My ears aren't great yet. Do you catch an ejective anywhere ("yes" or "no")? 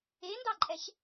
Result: yes